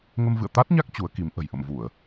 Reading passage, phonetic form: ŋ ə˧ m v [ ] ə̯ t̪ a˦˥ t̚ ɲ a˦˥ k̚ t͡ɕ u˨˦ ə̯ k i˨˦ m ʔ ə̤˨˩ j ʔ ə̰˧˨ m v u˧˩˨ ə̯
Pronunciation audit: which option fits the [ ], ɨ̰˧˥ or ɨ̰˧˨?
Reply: ɨ̰˧˨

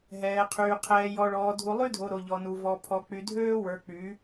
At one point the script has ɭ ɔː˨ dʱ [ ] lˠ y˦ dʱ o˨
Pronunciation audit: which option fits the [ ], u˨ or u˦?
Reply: u˨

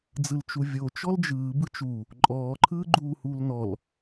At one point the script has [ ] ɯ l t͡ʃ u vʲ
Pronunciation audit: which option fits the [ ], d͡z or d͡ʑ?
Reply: d͡z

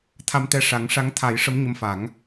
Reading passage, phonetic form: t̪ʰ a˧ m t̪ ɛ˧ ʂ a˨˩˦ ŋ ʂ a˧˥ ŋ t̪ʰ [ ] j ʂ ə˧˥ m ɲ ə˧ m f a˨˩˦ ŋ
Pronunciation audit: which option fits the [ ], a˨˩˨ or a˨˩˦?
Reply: a˨˩˦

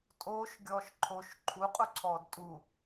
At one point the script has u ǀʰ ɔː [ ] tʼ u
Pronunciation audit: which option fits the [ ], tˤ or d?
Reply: d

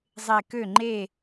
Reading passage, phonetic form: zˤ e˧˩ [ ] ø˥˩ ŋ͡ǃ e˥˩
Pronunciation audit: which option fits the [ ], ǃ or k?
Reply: k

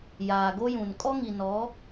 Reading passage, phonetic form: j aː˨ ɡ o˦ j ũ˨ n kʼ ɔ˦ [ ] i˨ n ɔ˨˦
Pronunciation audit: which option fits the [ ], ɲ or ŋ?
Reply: ŋ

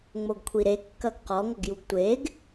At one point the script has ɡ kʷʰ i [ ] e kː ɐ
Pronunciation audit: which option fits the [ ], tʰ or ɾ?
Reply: ɾ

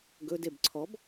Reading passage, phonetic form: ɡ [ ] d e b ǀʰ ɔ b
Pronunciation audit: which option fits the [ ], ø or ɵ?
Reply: ɵ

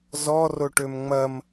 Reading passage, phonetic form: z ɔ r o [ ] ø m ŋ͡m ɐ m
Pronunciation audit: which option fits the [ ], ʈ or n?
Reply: ʈ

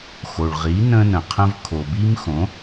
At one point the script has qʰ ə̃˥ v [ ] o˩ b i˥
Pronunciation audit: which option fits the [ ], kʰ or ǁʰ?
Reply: kʰ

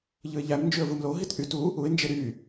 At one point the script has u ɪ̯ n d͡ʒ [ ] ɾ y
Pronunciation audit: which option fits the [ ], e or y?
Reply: e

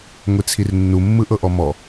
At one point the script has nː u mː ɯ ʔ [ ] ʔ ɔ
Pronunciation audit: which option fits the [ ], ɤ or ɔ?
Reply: ɤ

